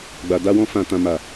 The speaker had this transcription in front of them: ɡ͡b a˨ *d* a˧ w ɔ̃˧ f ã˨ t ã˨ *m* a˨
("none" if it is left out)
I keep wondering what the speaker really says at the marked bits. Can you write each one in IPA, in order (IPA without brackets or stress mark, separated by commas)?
d, m